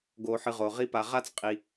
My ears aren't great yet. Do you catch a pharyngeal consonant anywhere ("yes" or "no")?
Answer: yes